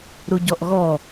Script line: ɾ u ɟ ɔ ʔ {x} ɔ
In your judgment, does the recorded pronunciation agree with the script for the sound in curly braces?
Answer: no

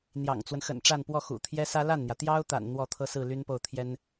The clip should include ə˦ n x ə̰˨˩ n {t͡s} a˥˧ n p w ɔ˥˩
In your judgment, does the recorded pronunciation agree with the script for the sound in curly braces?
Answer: no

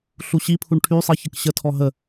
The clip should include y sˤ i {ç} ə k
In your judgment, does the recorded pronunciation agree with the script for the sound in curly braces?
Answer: yes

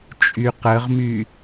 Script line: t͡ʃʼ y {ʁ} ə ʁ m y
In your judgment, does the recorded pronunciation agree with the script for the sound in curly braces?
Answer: no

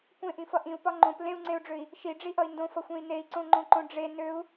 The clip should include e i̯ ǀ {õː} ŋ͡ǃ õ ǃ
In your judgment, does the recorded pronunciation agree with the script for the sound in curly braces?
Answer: no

